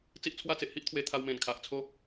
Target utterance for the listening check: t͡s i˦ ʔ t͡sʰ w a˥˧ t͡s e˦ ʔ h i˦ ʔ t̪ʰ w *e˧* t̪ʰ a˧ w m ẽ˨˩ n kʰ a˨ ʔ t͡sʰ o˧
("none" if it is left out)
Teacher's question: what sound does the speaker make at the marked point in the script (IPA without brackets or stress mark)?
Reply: e˧